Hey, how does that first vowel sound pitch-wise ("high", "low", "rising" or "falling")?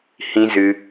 high